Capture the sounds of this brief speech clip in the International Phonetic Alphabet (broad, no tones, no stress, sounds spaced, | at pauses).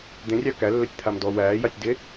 d̪ ẽ rʲ ɑ k æ lː œ tʲ t̪ʰ a m d ɔ w æː j ɑ tʲ d e